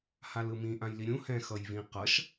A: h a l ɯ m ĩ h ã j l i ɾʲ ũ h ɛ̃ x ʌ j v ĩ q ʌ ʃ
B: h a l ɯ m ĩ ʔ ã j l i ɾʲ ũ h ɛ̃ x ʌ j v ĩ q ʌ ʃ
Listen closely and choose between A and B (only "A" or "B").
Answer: B